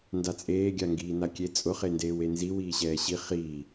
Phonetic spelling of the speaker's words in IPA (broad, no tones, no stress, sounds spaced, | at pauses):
n d a t͡sʼ eː ɡʲ a ŋ ɡ iː n a kʲ e t͡sʼ ʊ χ e n d eː w e n z i w iː ɕ ɛː ɕ i χ iː